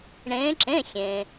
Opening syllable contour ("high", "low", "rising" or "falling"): rising